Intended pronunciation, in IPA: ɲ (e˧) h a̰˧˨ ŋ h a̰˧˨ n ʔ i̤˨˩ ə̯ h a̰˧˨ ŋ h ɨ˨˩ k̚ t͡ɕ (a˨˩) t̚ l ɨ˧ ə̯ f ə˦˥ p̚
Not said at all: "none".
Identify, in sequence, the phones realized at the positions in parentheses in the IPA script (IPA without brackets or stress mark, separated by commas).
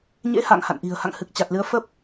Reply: ḛ˧˥, a˨˩